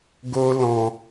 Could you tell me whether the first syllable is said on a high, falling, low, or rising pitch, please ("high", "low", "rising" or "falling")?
high